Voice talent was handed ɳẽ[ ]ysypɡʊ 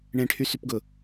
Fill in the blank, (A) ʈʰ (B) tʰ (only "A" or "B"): A